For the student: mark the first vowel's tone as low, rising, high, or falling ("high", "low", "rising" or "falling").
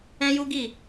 high